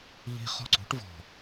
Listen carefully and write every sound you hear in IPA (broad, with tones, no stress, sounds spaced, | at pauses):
ʎ i̤˦ χ ɔ̤˦ ǀ ṳ˩˥ ʈ v ɔ̤˨˩